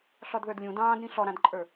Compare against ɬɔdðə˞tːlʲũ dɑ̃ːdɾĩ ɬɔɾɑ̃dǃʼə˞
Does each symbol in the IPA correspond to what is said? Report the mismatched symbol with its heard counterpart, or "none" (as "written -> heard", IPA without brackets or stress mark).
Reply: tː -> d